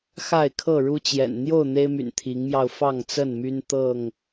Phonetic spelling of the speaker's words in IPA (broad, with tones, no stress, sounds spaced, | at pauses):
x a˥˨ ɪ̯ kʰ ɤ˥˨ ɻ u˦ t͡ɕ j ɛ̰˨˩ n n̪ j o˥˨ ʊ̯ n̪ e˦ ɪ̯ m y̰˨˩ n t̪ʰ i˨˦ ŋ m j ɑ˧ ʊ̯ f ɑ˥˨ ŋ t͡s ə˥˨ n m y˦ n t̪ ɤ˥˨ ŋ